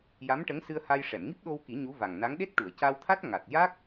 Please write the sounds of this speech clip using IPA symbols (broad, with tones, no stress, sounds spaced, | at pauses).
j a˧˥ m ʈ ə˧˥ ŋ s ɨ˧ ə̯ h a˧ j ʂ ɛ˨˩˨ m ŋ i˦˥ p̚ ɗ o˧ w k i˨˩˦ ɲ u˧˥ v a˨˩ ŋ n a˧˥ ŋ ɗ e˦˥ t̚ ʈ u˨˩˨ ə̯ c a˧ w t̪ʰ a˦˥ t̚ ŋ a˨˩ t̚ j a˦˥ k̚